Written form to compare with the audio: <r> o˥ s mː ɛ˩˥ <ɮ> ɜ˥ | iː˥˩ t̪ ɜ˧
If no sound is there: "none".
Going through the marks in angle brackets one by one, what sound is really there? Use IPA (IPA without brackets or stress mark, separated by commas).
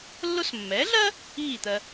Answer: lː, ɮ